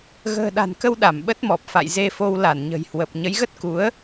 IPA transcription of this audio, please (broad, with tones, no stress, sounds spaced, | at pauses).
ɣ ə̤ː˨˩ ɗ a̤˨˩ n k ə˧ w ɗ a˧˩ m ɓ ə˦˥ t̚ m ɔ˨˩ p̚ f a̰˧˨ j z e˧ f o˧ w l a˧˩ n ɲ ə̤˨˩ j h w ə˨˩ p̚ ɲ ə˨˦ j ɣ ə˦˥ t̚ k u˨˦ ə̯